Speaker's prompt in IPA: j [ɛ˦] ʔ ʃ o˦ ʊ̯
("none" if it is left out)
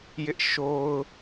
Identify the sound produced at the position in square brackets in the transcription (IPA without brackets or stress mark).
ɪ˦